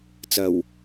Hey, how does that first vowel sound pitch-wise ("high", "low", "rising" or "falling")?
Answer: low